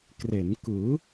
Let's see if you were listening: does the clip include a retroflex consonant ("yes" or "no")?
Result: no